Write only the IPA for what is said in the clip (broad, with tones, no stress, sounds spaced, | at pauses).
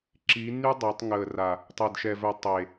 ǁ i˨˦ nː y˦ dˤ e˨˦ tˤ ŋ əː˨ r a˨ | tˤ ɛ˨ d ʃ ɛ˨ v œ˨ tˤ e˨